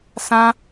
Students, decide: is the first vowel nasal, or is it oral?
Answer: nasal